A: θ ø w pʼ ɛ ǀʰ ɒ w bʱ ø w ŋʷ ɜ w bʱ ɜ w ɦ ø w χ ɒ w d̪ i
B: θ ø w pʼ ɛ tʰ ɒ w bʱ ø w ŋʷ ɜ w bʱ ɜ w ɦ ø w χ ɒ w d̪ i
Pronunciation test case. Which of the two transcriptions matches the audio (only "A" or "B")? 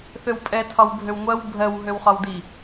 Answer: B